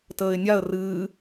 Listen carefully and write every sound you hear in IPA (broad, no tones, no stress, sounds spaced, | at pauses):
t əː ɪ̯ nʲ a ə̯ r ɨː